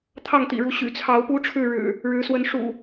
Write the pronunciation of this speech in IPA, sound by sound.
t̪ʰ ɑ˥˨ ŋ t̪ ḭ˨˩ ɻ u˨˦ ɕ y̰˨˩ t͡sʰ ɑ˨˦ ʊ̯ p u˦ ʈ͡ʂʰ ɻ̩˥˨ ɻ ɻ̩˨˩ | ɻ ɻ̩˨˦ s w ə˨˦ n ʂ ṵ˨˩

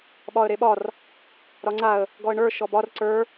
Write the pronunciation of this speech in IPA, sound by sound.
ɓ ɒ ə̯ ɾ e ɓ ɒ r | ɾ ɒ ŋ͡ǀ a ə̯ | ɡ ɔ ə̯ ɳ ə˞ ʃ ɔ b ɒ r ǀ ə˞

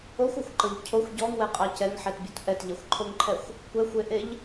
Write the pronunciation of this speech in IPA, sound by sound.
o xʷ o xʷ ǃ ɤ ʎ cʰ o xʷ ɟ ɔ ŋ w ɛ qʼ ɑ c ɛ ŋ ħ ɛ t bʲ o t ʔ ɛ t ʎ ɛ xʷ ǃʰ o ŋ ǃʰ ɛ xʷ | kʷ ɛ xʷ e ʔ e ʎ

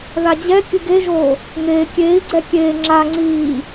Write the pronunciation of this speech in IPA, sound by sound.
ð a d͡ʑ ɛ kʲ ɨ ɡ e ʒ oː | ŋ eː kʲ eː i̯ ɡ͡ǀ ɛ kʲ eː ŋ͡ǁ a ŋ͡ǀ iː

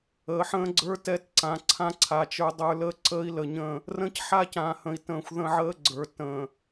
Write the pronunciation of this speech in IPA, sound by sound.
əː˨ ħ ə̃ː˦ ɡ͡ǀ ə˞˦ t ɛ˦ t ǀ ã˨ ǀʰ ã˦ ǀʰ a˨ t͡ʃ ə˞˦ dˤ ə˞˦ l əː˦ ǀ əː˦ i̯ l ə˨ ɲ ə̃˦˨ | r ə̃ː˦ c ħ a˦ c ãː˨ h ə̃˨ i̯ t ə̃ː˨ xʷ ð ə̃˦ ʕ əː˦ ɡ͡ǀ ə˞˨ t ə̃˨

